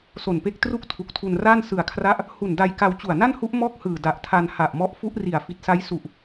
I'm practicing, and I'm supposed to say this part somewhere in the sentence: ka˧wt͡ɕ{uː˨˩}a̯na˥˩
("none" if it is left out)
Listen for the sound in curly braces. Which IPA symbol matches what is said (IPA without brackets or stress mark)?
u˨˩